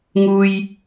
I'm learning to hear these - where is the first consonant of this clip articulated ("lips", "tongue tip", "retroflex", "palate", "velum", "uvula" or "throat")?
velum